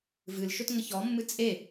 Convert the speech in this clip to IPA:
v ɨ l ʃ ɵ t ŋ ə ç ɔ mː ɨ t͡sʼ e

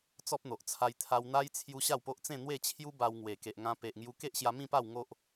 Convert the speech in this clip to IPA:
t͡s ɔ˦ p̚ n̪ o˨ ʔ t͡sʰ a˧ j t̪ʰ a˧ w n̪ a˦ j t͡sʰ j u˧ ɕ a˥˧ w p o˦ ʔ t͡s ẽ˥˧ n̪ w e˥˧ t͡ɕʰ j u˦ b a˧ w ŋ w e˨˩ k e˨ ʔ ŋ ã˧ p e˨ ʔ ŋ j u˧ k e˦ ʔ ɕ j a˧ m ĩ˥˧ p a˥˧ w ŋ o˦ ʔ

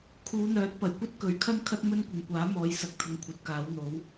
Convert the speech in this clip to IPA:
kʰ uː˨˧ n̪ œː˨˥ t̚ p ɐ˨˩ j kʷ ɐ˥ t̚ k ɵ˨˥ ɥ kʰ ɐ˥ n kʰ ɐ˥ t̚ m ɵ˥ n kʷ ɪ˨ ŋ kʷ aː˨˥ m ɔː˨˧ j s ɐ˨˥ k̚ t̪ʰ ʊ˧ ŋ kʷʰ ɐ˨˥ t̚ k aː˨˥ w n̪ o˨˥ w

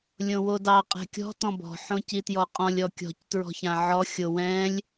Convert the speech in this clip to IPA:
lʲ õ w o d ɑ qʼ ɛ̤ kʲ ɔ̤ t ɔ̃ b ɔ̤ ħ õ c i t j ɔ qʼ ɔ̃ lʲ ɔ kʲ ɔ̤ c t ɹ ɔ̤ ç ã ʕ ɔ xʲ o w ɛ̃ lʲ

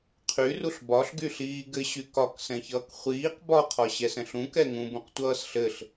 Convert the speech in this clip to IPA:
qʰ y r u ɬ b ɒ ɬ ɡ y ɬ iː ɡ ɘ ɕ y k ɒ k s ɛ̃ ç ʌː k χʷ iː q b ɒ qʰ ɒ ɕ ɛ s ɛ̃ ɬ ũ k ɛ ŋ ũ b ũ q tʷ ʌː s ɬ ɘ ɬ

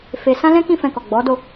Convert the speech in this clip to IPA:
f e˦ s ã˦ l ɛ̃˦ k ĩ˦˨ f ɛ̃˧ k ɔ˨ ɡ͡b ɔ˨˦ d o˦˨

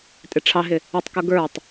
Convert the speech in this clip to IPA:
tʼ ɪ ʈ͡ʂʰ ɑ ɦ ɪ | ɪ tˤ k ʊ ɡ ə˞ tˤ

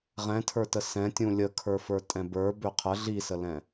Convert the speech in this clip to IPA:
ʁ ɛ̃ tʰ ə˞ t ə s ɛ̃ tʲ ũ lʲ ə kʰ ə˞ f ə˞ tʼ ɛ̃ b ə˞ b ø qʰ ə ɮ i s ə l ɛ̃

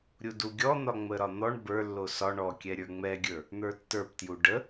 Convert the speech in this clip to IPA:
ɾʲ u d u ɡʲ ɔ n̪ ɒ ŋ͡m ə ɾ ɒ n̪ ɔ ɳ b ə˞ lː o s ɒ ɳ ɔ kʲ ɛ ɾʲ ə˞ ŋ͡m ɛ ɡʲ ə˞ | n̪ ə˞ tː ə˞ p t j u ɖ ə

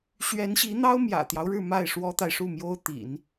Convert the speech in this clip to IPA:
ɕ ɥ ɛ˧˥ n ɕ i˧˥ n̪ ɑ˥ ʊ̯ m j ä̰˨˩ t̪ j ɑ˦ ʊ̯ ɻ ɻ̩˥˧ m a˥˩ ɪ̯ ʂ w ɔ˥ t̪ a˨ ɪ̯ ʂ u˥˩ m j o˥ ʊ̯ t̪ ḭ˨˩˦ n

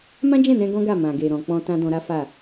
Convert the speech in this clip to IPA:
m ã˦ d͡ʒ ɛ̃˦˨ n ɛ̃˧ ɡ ɔ̃˦ ɡ a˦˨ m ã˨ ɡ e˨ ɾ ɔ̃˨ k͡p ɔ̃˧ t ã˦ d ɔ̃˧ ɾ a˦ f a˦˨

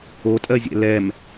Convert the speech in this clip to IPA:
o tʼ ɜ zʲ ɛ̰ l ɛ m

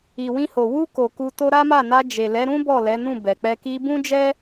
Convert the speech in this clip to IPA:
i˨ w ĩ˧ h o˨ w u˧ k o˨ k u˧ t o˦ ɾ a˦ m a˦˨ n a˧ d͡ʒ e˨ l ɛ˨˦ ɾ ũ˦ b ɔ˦˨ l ɛ˨˦ n ũ˦˨ b ɛ˨ k͡p ɛ˧ k i˧ b ũ˦ d͡ʒ ɛ˦

